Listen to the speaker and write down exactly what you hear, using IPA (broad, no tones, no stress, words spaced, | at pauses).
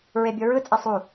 ɹebʲoɹɯt͡sʼe sˤu